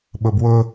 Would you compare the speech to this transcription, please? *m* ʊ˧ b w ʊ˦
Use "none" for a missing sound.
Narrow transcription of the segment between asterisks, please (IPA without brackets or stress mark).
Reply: ɓ